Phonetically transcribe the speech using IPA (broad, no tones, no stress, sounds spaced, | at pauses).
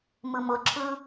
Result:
m ɯ m ʊ ǁʰ ɯ